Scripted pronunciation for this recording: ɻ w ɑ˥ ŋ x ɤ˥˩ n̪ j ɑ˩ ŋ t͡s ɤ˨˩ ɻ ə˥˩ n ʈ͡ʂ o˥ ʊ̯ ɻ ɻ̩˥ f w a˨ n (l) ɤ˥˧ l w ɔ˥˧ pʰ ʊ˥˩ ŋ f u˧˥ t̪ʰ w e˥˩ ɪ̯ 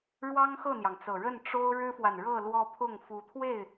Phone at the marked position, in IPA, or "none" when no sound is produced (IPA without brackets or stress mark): ɻ